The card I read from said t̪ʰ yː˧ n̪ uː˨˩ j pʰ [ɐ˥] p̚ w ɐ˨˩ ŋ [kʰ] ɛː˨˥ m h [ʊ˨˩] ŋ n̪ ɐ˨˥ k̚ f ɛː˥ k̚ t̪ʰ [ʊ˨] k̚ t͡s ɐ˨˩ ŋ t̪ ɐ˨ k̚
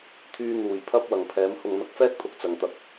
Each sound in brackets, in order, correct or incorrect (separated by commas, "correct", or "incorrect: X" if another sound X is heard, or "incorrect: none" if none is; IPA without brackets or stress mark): correct, incorrect: pʰ, incorrect: ʊ˨, correct